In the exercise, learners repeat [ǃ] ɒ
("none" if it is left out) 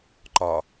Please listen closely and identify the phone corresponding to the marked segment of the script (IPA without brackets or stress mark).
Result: ǃ